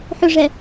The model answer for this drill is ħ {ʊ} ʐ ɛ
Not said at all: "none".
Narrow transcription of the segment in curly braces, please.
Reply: ʊ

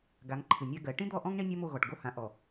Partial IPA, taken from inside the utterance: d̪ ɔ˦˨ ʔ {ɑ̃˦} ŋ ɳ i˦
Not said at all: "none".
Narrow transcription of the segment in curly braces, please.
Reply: ɔ̃˦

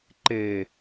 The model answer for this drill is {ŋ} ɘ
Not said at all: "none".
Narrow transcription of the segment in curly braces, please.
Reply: ǃ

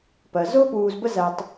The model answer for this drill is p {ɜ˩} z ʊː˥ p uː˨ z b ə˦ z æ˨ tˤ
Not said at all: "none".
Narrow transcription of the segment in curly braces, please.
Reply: ɜ˩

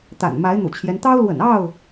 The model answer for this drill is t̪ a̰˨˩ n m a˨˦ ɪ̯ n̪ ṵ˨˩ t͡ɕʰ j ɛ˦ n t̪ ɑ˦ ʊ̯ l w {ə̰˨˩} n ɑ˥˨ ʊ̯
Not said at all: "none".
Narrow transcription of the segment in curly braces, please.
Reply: ə̰˨˩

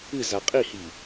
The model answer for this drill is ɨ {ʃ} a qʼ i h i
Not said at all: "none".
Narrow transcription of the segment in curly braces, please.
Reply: z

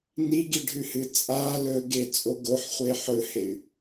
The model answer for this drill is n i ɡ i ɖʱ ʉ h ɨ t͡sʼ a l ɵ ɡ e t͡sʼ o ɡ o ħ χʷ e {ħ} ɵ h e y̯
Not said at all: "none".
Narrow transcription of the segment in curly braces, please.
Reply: ħ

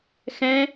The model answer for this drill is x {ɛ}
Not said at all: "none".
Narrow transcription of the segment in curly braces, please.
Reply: ɛ̃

